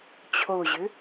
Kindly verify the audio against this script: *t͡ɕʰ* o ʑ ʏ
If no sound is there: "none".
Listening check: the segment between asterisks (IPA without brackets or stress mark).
t͡ɕʰ